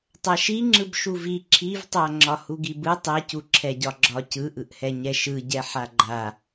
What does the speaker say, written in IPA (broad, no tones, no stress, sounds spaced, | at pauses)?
tˤ a ʃ i ŋ͡ǁ ɯ b ʃ u v i ǁʰ i v tˤ a ŋ͡ǁ ɒ h u ɡ i b ɯ tˤ ɛ c u ǁʰ ɛ ɟ ɒ ɡ͡ǁ ɒ c ɯ ʔ ɯ ʔ h ɛ ɲ ɛ ʃ ɯ ɟ ɛ ħ a ɡ͡ǃ a